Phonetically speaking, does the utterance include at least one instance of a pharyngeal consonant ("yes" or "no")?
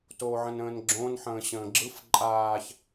yes